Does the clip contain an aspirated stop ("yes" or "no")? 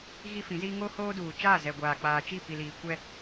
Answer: no